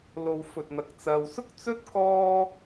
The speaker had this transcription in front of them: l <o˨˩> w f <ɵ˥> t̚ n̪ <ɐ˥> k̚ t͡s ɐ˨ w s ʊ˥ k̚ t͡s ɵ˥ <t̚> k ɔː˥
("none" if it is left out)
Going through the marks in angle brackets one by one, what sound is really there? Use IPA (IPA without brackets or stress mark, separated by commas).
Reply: o˧, ɵ˧, ɐ˧, t̚